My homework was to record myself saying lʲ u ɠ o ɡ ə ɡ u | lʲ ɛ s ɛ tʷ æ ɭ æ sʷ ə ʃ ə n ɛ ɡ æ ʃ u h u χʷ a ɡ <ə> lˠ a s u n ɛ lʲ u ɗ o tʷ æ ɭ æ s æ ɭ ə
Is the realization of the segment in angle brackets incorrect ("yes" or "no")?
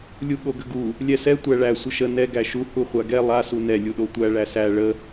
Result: yes